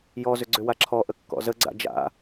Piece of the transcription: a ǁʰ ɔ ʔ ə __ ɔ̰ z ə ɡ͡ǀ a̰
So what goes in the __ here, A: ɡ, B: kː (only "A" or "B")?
B